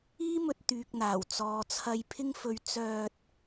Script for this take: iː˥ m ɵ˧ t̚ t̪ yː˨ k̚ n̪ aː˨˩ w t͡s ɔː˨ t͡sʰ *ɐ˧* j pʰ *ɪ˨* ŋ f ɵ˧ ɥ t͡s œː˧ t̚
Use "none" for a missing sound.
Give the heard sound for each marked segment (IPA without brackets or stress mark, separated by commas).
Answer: ɐ˧, ɪ˥